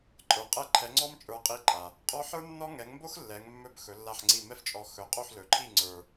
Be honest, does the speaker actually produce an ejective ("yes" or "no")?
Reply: yes